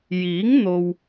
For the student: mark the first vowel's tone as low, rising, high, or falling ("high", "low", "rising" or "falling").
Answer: rising